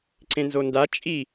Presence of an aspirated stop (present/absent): absent